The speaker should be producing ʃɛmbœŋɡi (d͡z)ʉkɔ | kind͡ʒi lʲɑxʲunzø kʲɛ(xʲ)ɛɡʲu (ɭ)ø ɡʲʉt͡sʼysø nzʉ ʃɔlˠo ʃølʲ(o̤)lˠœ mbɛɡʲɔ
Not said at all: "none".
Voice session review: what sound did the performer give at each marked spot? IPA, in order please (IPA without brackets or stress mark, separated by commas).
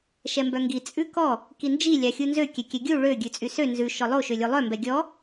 t͡sʼ, kʲ, ɭ, o